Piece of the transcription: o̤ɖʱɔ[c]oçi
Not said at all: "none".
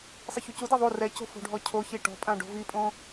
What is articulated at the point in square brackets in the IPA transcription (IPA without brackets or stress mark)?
cʰ